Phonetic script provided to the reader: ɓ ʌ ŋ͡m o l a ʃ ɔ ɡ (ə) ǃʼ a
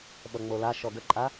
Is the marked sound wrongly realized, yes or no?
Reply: no